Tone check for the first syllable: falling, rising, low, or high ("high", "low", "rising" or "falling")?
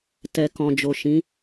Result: low